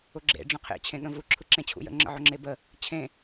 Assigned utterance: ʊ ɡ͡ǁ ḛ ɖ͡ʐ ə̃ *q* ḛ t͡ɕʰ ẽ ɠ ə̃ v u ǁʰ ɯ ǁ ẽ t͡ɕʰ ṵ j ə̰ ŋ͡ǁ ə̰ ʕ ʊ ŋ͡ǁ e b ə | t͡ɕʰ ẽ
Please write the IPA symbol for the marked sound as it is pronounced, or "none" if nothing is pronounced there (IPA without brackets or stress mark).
qʰ